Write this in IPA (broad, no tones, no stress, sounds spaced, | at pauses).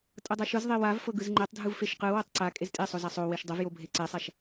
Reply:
tʼ ɤ dˤ a ʃ ɯ z ðˤ e w a v f ɤ ɡ ɯ z ŋ͡ǃ ɛ tˤ dʱ ɯ v f e ʃ q ɯ w ɤ tˤ ǀ a kʼ e z tʼ e sˤ o z a sˤ o w e ʃ dˤ ɤ v j o bʱ e ǀ ɛ sˤ a ʃ